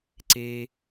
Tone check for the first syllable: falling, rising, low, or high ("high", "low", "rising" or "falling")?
low